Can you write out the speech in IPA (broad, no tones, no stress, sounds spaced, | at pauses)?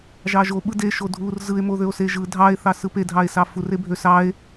ʒ ɑ ʒ o ɓ ɯ d e ʃ o dʱ u r z ɯ e̯ m o ð ø o̯ s e ʒ ɯ dʱ ɑ e̯ θ ɑ s ɯ p e dʱ ɑ e̯ s ɑ f u r e bʱ ø s ɑ e̯